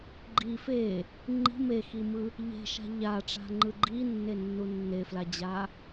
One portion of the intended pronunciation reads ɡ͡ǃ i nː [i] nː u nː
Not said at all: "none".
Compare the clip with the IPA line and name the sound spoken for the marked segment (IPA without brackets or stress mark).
e